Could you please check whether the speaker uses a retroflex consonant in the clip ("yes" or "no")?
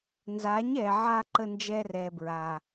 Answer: no